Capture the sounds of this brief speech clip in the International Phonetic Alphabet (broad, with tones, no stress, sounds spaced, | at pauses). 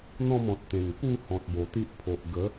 n̪ ɔ̃˥˧ m ɔ̃˨ t̚ t̪ ẽ˨˩ ŋ p u˥˧ h ɔ̃˨ t̚ b o˨˩ t̪ i˦ ʔ pʰ o˨ ʔ ɡ ə˨˦